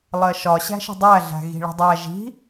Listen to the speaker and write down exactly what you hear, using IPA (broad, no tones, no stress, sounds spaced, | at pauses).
lˠ ɜ ʃ ɒ ɕ æ̤ ʃ ə̤ dˤ æ ɮ æ̤ ɣ i̤ ɭ ə̤ dˤ æ ʒ i̤